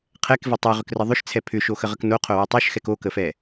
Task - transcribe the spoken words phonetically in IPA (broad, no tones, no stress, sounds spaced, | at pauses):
qʰ ɛ k v e tˤ ɛ ʁ ʏ k r ə ðˤ ʏ ʃ t͡sʰ ɛ pʰ ʏ ʃ o x ə ʁ ə k n o qʰ o w ə tˤ o ʃ x ɛ k o k ə f ɛ